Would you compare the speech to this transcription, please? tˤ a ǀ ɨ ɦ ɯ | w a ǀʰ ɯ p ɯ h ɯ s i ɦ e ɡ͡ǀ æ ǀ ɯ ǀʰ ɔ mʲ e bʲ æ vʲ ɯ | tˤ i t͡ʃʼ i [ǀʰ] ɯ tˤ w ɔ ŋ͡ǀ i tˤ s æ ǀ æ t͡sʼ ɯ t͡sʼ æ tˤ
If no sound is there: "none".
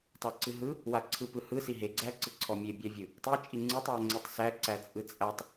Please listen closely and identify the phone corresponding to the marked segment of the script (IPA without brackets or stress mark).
ŋ͡ǀ